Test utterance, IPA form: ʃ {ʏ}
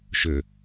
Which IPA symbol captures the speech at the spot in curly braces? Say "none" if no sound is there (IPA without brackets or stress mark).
ʏ